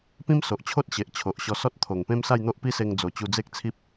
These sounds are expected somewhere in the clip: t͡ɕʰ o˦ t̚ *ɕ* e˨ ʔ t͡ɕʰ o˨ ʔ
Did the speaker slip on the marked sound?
no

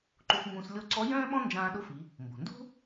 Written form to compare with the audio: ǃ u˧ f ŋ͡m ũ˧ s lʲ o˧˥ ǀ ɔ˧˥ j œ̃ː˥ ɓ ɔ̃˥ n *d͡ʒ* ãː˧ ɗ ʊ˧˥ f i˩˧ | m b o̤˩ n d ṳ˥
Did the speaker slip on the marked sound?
no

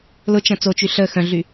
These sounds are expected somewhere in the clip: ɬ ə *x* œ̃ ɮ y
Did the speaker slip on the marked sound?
no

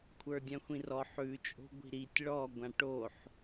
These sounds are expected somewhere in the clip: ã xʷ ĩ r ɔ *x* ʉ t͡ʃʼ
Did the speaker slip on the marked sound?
yes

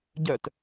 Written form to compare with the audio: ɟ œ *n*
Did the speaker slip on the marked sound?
yes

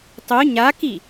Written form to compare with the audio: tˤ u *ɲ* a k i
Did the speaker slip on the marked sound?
no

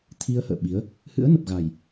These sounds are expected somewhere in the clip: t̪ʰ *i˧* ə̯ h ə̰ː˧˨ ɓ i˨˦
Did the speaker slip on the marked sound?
no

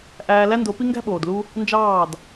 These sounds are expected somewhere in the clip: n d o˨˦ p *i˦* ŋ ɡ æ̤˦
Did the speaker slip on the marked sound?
no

